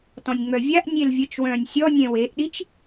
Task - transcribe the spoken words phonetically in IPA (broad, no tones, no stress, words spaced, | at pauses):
tɔ̃nʲŋ͡mœvʲaʔ nʲelvʲət͡ʃ wœ̃ːnʲsʲɔ nʲɛ̃weʔɗit͡ʃ